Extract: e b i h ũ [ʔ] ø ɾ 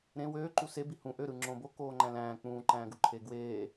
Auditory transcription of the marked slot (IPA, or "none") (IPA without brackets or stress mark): ʔ